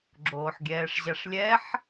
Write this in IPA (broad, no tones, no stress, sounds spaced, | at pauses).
ɡ͡ǁ oː ħ ɡʲ ɛː ʂ ʑ a ʂ lʲ ɛ ħ